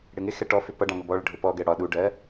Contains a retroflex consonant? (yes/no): yes